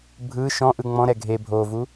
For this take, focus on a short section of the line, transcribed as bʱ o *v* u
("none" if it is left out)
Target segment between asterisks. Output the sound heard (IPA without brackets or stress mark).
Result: v